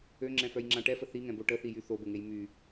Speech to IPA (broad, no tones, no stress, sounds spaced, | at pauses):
ø ŋ͡ǁ ɛ̃ f œ j ŋ͡ǁ ã ʈ ɛ f ə θ i ŋ ɛ̃ b o ʈ ə θ i j y θ o b ə ŋ e j m y